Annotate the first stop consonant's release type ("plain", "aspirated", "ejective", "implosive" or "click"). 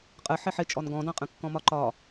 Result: ejective